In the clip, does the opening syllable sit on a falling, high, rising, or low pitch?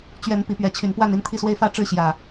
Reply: rising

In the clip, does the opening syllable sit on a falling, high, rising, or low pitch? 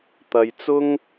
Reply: low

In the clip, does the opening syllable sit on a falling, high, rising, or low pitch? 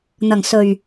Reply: low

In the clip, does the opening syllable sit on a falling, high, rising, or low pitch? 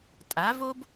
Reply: rising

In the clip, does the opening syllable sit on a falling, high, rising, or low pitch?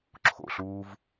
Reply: low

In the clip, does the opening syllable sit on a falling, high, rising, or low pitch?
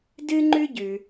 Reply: high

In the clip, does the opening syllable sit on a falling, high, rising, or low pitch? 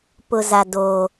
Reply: low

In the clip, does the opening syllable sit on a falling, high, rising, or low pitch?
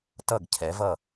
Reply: falling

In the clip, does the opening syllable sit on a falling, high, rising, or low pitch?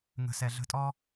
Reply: low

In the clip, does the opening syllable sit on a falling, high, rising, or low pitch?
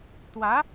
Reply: rising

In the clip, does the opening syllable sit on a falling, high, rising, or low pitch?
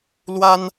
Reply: high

